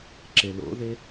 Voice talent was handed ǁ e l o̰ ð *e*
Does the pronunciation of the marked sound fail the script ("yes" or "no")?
no